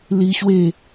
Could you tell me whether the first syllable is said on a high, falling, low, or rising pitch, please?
high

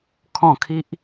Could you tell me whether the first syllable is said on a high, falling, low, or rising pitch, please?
falling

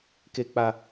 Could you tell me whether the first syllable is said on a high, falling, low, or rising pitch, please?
high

